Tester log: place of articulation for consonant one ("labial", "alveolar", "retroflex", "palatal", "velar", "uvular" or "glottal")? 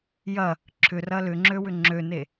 palatal